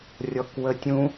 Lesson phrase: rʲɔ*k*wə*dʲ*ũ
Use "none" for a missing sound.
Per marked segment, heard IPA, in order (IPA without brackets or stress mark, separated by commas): k, tʲ